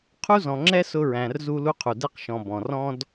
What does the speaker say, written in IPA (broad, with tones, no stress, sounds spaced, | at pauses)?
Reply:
qʰ u˥ z ɔ̃˨ ŋ͡ǁ ɛ˥ s ʊ˦ ɹ æ̃˨ r z u˦ l u˦ qʰ u˩ d ɛ˦ q ʃ ɔ̃˨ b ɔ̃˩ r ɔ̃˥ d